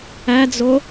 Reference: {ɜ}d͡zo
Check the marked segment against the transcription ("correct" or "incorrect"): incorrect